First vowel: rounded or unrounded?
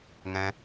unrounded